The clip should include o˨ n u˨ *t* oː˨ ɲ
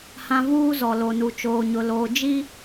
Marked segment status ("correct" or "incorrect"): incorrect